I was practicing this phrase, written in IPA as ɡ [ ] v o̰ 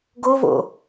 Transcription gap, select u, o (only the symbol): o